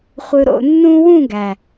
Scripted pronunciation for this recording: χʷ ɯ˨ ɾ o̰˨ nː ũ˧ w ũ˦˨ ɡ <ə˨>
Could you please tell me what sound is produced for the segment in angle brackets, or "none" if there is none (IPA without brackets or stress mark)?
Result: æ˨